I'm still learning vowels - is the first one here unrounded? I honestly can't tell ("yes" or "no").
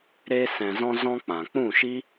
yes